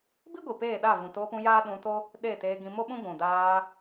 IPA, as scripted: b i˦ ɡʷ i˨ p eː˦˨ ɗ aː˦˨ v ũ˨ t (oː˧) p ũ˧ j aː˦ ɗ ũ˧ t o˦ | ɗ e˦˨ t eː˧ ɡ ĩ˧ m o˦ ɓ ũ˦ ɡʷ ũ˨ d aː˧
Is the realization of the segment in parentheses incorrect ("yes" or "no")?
no